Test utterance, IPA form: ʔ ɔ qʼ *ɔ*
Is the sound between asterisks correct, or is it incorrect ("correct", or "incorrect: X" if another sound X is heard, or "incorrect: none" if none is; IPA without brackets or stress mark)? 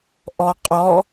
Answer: correct